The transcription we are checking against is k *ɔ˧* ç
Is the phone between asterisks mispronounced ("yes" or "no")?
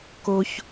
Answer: yes